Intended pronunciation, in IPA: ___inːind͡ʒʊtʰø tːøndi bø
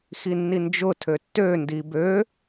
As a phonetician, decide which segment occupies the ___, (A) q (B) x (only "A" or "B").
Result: B